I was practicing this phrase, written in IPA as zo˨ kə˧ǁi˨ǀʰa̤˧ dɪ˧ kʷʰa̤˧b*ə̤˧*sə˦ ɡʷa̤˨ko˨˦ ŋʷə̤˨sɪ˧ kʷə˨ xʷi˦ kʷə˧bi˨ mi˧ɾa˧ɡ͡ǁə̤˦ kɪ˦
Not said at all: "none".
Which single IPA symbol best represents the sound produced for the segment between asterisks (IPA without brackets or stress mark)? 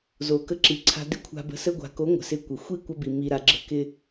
ə̤˧